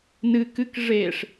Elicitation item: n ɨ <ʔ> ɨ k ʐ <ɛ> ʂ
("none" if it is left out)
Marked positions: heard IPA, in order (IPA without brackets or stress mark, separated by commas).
k, e